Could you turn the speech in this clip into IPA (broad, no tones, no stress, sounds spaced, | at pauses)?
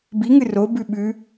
b i ŋ ɨ r o b ʉ ɓ ʉ